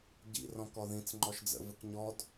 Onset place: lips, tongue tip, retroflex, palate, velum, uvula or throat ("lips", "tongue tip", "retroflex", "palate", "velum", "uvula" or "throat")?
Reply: palate